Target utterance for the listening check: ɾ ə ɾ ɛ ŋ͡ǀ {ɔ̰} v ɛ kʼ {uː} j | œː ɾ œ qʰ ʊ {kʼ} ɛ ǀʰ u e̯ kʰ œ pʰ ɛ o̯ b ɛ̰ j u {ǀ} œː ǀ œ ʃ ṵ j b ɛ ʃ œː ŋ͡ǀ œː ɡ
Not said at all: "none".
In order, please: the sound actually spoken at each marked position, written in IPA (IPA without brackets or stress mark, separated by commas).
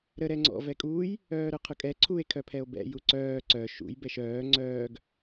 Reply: ɔ̰, uː, kʼ, ǀ